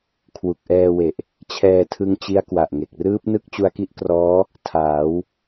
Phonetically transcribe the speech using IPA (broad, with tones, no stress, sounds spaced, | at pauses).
kʰ w u˨˩ k̚ ʔ ɛː˧ w e˨˩ ʔ | t͡ɕʰ ɛː˧ tʰ ɯ˧ ŋ t͡ɕ i˦˥ a̯ k w a˨˩ ʔ ŋ e˨˩ k̚ r ɯː˦˥ p̚ n ɯ˥˩ k̚ t͡ɕ u˧ a̯ k i˥˩ ʔ k r ɔː˦˥ | tʰ aː˩˦ w